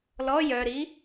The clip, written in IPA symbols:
l ɔ j œ ɾ i

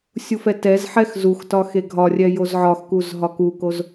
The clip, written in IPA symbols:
sʲ u f ɛ t ɛ z ħ ɛ x z u x t ɒ x e ɡʱ ɒ rʲ ɛ j o z ʕ ɒ x k u z ɦ ɒ k u k o z

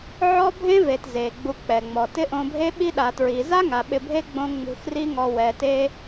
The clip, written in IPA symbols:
ʕ ɔ˦ bʱ ẽ˦ v e˨ t z e˨ ɡ͡b u˧ k͡p ɛ˨ ŋ͡m ɔ˨ t ɪ˦ ʔ õ˧ bʱ e˦ ɓ i˦ ɗ a˨ t ɹ i˨ z a˦ ŋ a˨ ɓ ɪ˧ bʱ e˦ ɡ͡b õ˧ ŋ͡m ṳ˧ x r i˦ ŋ ɔ˧ w ɛ˨ t e˧

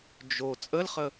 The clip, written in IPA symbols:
d͡ʒ o t͡sʼ ə l χ ə

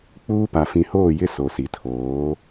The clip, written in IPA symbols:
k͡p uː˦ p a˨ f ĩ˨ h oː˦˨ j ɪ˦ s o˨ s i˨ tʰ oː˨˦

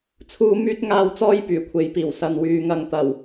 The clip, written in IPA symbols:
t͡sʰ uː˧ m yː˥ t̚ ŋ aː˧ w t͡s ɔː˥ j p yː˨˩ kʷʰ e˨ j p iː˨˩ w s ɐ˨ n w yː˨ ŋ ɐ˨ ŋ t̪ ɐ˨˩ w

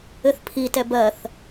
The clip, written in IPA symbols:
ɘ θ pʰ i t ɛ b ɜ θ

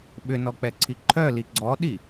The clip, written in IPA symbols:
ɓ ʏ n ɔ k͡p ɛ ǀʰ i ǃʰ œ l i ɡ͡ǀ ɔ ɗ i

